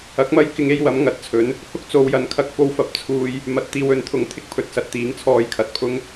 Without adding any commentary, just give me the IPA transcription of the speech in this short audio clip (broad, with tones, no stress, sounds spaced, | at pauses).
ɐ˨˥ k̚ m ɐ˥ j k ɪ˧ ŋ e˧ j w ɐ˨˥ m ŋ ɐ˨˥ t̚ t͡sʰ ɵ˨˥ n | h ʊ˥ k̚ t͡s o˨˧ w j ɐ˨˥ n kʰ ɐ˧ k̚ f o˧ w f ɐ˨˥ p̚ t͡sʰ uː˧ j | m ɐ˨ t̚ t̪ iː˨ w ɵ˨˧ n t̪ʰ ʊ˨˥ ŋ t̪ʰ ɪ˥ k̚ pʰ ɵ˨ t̚ s ɐ˨˥ t̚ t̪ iː˨˥ ŋ t͡sʰ ɔː˧ j kʰ ɐ˨˥ t̚ pʰ ʊ˥ ŋ